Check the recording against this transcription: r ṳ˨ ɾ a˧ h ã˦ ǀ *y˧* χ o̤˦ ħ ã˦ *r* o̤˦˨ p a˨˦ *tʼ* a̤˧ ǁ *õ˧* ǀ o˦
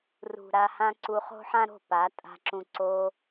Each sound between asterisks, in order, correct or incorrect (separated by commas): incorrect, incorrect, correct, incorrect